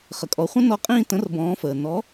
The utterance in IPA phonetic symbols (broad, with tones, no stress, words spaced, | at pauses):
χə˩kʼɔ˩˧χʷə̃˧˥ nɔ˧˥qʼĩː˥˧ tə̃˩˥rbɔ̃ː˩˧fəː˩ nɔ˩˥